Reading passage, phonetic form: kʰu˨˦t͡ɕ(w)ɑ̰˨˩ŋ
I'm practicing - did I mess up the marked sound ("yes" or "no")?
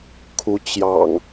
yes